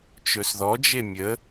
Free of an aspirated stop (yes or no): yes